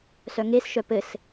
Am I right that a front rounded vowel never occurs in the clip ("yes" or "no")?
no